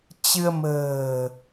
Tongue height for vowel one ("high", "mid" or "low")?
high